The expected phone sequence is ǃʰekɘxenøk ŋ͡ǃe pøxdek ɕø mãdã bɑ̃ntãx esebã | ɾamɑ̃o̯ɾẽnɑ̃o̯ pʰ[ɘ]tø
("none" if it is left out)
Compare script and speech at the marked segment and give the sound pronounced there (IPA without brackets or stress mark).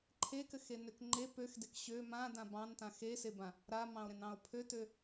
ø